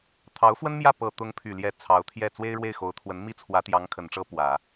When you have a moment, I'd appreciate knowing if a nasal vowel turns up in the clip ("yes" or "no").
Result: no